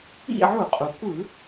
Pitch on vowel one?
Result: falling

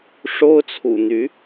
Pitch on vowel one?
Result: high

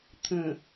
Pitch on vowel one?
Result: low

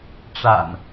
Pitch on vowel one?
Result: low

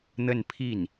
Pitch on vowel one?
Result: falling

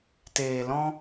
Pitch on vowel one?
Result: low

